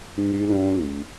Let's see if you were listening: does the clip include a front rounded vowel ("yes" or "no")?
yes